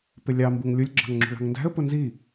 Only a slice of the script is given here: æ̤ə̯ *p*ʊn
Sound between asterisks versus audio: correct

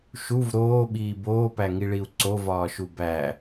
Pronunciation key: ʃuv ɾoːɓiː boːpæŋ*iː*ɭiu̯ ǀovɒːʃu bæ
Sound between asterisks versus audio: incorrect: i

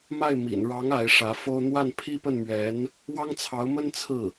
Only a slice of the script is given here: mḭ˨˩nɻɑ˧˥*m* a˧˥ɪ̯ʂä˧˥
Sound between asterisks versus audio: incorrect: ŋ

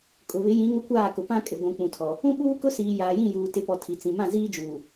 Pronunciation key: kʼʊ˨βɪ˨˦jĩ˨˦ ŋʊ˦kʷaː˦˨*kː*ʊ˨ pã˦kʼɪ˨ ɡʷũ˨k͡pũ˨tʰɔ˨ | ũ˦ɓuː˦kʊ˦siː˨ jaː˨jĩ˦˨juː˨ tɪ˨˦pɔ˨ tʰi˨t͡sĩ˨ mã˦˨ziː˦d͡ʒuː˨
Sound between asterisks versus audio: incorrect: k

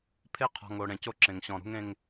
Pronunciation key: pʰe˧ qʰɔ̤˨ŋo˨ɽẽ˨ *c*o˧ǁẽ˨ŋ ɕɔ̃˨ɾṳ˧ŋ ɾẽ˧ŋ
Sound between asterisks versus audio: correct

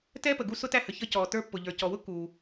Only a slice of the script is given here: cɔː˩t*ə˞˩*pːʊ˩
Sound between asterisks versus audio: incorrect: ə˞˥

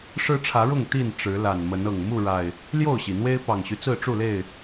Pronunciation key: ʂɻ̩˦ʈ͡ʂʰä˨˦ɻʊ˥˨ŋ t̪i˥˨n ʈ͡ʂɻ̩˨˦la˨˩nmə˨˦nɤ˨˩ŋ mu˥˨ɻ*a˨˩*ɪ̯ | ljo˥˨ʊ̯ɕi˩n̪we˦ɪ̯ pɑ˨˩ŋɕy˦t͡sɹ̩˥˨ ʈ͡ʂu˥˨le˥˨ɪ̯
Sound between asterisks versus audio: correct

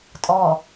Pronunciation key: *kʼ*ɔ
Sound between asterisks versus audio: incorrect: tʼ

